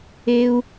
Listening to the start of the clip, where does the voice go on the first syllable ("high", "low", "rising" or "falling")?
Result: low